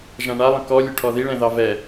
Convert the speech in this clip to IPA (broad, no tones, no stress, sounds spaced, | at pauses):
ʒ ã ɳ a lˠ ə̃ k ɔ lʲ ɵ ʈʰ ɔ ð i ɭ ɛ̃ ð ɑ v ɛ